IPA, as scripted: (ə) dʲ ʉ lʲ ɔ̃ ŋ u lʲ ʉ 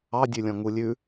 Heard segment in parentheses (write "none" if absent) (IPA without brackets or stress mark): ɑ